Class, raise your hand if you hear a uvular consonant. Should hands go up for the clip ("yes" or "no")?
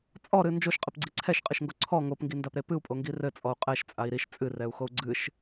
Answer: yes